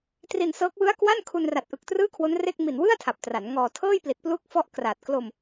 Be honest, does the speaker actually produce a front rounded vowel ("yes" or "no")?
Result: no